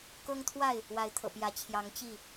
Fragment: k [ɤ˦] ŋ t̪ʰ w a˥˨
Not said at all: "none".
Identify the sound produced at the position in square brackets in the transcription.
ɤ˦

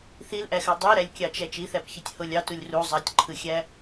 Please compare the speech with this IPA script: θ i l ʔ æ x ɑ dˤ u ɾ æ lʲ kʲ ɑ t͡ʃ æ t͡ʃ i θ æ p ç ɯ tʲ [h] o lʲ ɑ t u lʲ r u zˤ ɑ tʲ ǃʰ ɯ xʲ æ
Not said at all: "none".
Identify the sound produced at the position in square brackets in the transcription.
h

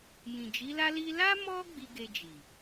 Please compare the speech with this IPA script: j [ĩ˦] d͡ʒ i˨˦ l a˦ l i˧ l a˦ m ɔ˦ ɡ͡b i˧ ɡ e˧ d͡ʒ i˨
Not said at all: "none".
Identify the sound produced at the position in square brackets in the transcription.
ĩ˨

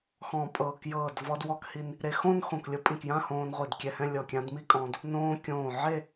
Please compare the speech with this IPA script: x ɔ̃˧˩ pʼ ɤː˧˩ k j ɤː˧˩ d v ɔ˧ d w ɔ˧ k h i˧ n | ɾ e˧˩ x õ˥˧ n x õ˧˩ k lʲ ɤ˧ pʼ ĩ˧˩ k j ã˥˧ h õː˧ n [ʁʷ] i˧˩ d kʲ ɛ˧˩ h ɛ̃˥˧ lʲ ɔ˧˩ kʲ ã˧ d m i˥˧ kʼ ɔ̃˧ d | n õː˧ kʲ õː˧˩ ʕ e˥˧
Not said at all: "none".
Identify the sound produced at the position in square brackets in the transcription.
ʁʷ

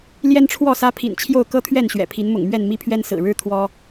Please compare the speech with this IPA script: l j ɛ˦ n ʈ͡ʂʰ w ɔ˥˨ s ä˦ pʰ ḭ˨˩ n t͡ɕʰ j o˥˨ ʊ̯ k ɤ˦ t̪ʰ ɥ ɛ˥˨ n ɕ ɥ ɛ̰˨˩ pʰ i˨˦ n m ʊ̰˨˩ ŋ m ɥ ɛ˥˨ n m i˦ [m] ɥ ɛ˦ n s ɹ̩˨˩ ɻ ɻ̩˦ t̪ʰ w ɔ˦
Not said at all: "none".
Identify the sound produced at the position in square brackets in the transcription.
pʰ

